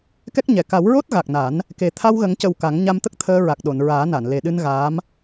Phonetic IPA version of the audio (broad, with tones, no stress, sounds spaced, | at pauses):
k ɛ˦˥ k̚ ɲ ɛ˨˩ k a˨˩˦ w ɹ o˦˥ t̚ ɣ a˨˩ k̚ n a˨˩˦ n | k e˨˩ t̪ʰ a˧ w ɣ ə˨˩˦ ŋ c ə˨˩ w k a˨˩˦ ŋ ɲ a˧ m t̪ ə˦˥ k̚ t̪ʰ əː˧ ɹ a˨˩ k̚ ɗ o˨˩˨ n ɹ aː˨˩˦ n a˨˩˨ n l e˨˩ ɗ ɨ˧ n ɣ aː˧˥ m